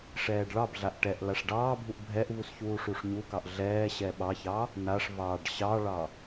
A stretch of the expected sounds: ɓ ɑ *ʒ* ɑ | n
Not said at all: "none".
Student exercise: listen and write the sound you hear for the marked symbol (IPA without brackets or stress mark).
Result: ç